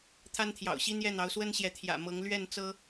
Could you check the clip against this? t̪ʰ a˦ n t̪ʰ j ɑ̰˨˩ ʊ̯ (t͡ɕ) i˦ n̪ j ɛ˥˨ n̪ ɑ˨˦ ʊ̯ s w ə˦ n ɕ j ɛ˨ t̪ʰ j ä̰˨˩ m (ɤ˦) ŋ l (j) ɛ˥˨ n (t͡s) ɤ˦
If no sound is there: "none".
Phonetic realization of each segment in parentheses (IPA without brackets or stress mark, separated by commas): ɕ, ɤ˨˦, ɥ, t͡s